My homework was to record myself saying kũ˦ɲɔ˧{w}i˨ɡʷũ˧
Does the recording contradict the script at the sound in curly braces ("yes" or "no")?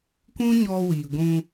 no